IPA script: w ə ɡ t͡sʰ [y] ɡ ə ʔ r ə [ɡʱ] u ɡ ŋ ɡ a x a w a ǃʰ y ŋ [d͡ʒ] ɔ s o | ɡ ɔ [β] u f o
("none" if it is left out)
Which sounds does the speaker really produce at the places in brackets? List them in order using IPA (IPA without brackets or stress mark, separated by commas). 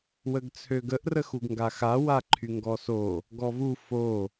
ø, x, ɡ, v